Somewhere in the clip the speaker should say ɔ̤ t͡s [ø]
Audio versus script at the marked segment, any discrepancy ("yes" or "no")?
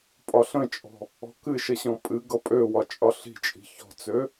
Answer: no